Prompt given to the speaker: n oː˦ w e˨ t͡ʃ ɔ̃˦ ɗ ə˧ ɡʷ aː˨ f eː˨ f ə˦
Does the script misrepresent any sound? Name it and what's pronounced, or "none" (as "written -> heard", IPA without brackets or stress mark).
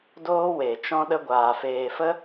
n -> d